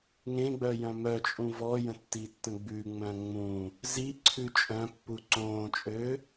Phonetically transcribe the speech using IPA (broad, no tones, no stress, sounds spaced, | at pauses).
ŋ ẽ ɡ͡b œ j œ̃ m œ t͡ʃʼ ũ v ɔ j ə̃ tː i tː ə̃ ɡ͡b ʉ ŋ͡m œ̃ ŋ͡m ũ | z i ǀʰ ʉ t͡ʃʼ œ̃ pː u ǀ õː t͡ʃʼ ø